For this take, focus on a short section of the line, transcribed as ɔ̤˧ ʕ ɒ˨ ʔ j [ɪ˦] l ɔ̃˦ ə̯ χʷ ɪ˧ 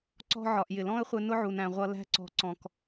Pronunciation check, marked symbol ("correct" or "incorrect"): incorrect